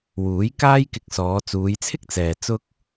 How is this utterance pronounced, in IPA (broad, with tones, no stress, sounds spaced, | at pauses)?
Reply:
w uː˨˥ j k aː˥ j k ɪ˧ k̚ s ɔː˨˧ t͡s uː˨˧ j t͡sʰ ɪ˥ k̚ t͡s ɛː˨ t͡s ʊ˥ k̚